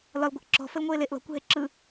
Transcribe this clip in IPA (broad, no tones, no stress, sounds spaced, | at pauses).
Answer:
l ɒ l ɡʷ ə ʔ ǁ ɔ̤ f ə l ŋʷ eː l e ʔ l ɔ̤ kʷ ɦ e ǁ ɯ